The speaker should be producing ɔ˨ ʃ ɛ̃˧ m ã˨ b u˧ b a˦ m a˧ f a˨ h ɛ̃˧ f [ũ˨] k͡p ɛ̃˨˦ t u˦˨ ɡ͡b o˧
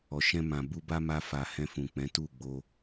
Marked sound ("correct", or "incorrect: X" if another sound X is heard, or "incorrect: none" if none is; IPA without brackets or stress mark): correct